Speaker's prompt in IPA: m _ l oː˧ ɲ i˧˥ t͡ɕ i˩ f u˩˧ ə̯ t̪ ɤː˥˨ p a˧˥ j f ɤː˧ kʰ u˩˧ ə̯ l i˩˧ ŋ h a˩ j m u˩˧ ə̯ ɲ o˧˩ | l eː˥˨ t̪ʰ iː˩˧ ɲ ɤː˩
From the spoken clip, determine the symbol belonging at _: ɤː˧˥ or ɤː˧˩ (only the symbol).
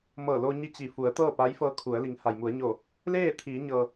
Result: ɤː˧˩